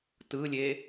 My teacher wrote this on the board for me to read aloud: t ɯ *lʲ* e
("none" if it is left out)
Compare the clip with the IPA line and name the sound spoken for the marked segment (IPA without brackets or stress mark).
lʲ